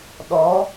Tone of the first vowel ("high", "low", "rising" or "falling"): rising